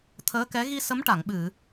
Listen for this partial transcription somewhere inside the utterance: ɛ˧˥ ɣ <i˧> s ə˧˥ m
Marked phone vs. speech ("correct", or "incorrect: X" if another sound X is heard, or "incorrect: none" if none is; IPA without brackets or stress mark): correct